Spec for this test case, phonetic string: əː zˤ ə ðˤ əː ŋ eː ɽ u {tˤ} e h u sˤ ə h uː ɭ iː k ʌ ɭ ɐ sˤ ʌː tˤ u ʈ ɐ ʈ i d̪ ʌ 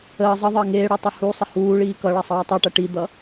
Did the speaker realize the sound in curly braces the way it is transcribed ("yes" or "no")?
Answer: yes